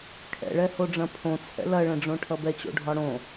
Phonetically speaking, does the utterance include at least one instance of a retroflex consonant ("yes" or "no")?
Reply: yes